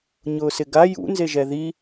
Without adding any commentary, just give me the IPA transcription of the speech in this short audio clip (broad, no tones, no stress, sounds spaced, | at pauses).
ɲ ʊː s ɪ ɡ a j ṵ n z e ʒ ɛ ð i